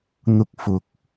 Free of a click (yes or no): yes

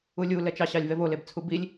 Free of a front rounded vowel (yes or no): yes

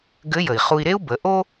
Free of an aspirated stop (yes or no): yes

